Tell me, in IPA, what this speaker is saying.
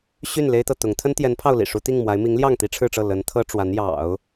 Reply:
ɕ y˥˩ n l e˥ ɪ̯ t̪ ɤ˥˩ t̪ ʊ˧˥ ŋ t̪ʰ ə˥ n t̪ j ɛ˧˥ n pʰ ɑ˥˩ ʊ̯ l ḭ˨˩ ʂ u˧˥ t̪ i˥˩ ŋ m w a˧˥ ɪ̯ m i˧˥ ŋ l j ɑ˥˩ ŋ t̪ i˥ ʈ͡ʂʰ ɻ̩˥˧ ʈ͡ʂ ɤ˥˩ l ə˧˥ n t̪ʰ ɤ˥ ʈ͡ʂ w a˧˥ n j ɑ̰˨˩˦ ʊ̯

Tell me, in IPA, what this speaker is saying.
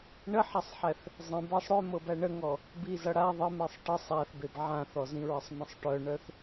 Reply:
ɳ ə ħ a sˤ ħ æ θ | zˤ ə̃ b æ sˤ ɽ œ m ɤ b æ ɳ ə ŋ ɔ | b i z ʌ ɽ a ðˤ ə m e sˤ ʈ ə sˤ a θ b e b ʕ ã θ ɔ z ĩ ɹ ə sˤ m ə̃ sˤ ʈ œ ɳ œ θ

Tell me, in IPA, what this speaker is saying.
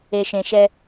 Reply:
e˨ ʃ ẽ˨ ʃ ɛ˦

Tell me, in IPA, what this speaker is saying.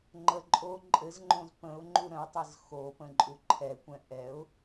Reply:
ŋ͡ǃ ə ǃʼ o ǃʼ ɘ z ŋ͡ǃ õ z p ə̃ ʊ̯ ŋ͡ǃ u ɾ ə̃ ʊ̯ tˤ ɘ z x o p ə̃ ǃʼ u ǃʰ ɛ kʷ ɛ̃ ʔ ɛ ʊ̯

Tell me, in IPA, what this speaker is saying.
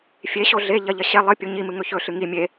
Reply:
fʲ e ɕ o ɮ e ʎ ɐ ʎ ɐ ɕ e lˠ ɨ pʲ u ɲ i m ɨ ŋ ɵ ç ɵ ɬ ɨ ŋ i mʲ e

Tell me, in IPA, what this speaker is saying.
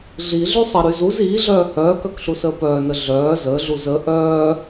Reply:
ɮ i ɮ y sˤ ə ɾ y z u z iː ɮ œː h œː k œ k ɬ u s əː p œː n ə ɮ œː z əː ɮ u z ə ʔ œː

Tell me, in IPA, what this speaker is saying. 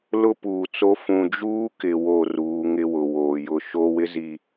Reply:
l ʊ˦ p uː˨ t͡s o˦ f ũ˨ d͡ʒ uː˦ k ɪ˨ w o˦˨ r uː˨˦ ŋ ɪ˦ w ʊ˨ w oː˨ j ʊ˦˨ ʃ o˦ w ɪ˦ z i˨

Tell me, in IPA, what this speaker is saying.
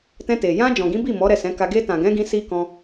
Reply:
t ɛ̃˧ t e˨ j ã˧ d͡ʒ ɔ̃˨ ɡ ĩ˨˦ b i˦˨ m ɔ˨˦ ɾ ɛ˦˨ s ɛ̃˨˦ k a˧ ɡ e˧ t ã˨ ɡ ɛ̃˨˦ ɡ ĩ˧ s i˦ k ɔ̃˧

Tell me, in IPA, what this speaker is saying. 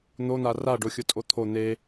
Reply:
n̪ o n̪ a r a ɖ o xʲ ʊ tʼ o t̪ʰ o n̪ e

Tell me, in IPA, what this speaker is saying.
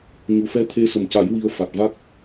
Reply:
ɲ u˨˩ f ɛ˧ t̪ʰ e˧ s ə˨˩ m c a˨˩˦ j w i˧ ə̯ f a˨˩ t̚ v a˦˥ k̚

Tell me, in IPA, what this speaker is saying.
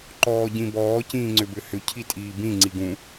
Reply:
ǃ ɔː ɟ ĩ b ɔː c ĩː ŋ͡ǀ ʏ b ʏ h ʏ cʰ i tʼ iː b ĩ ŋ͡ǀ i ɡ ũ

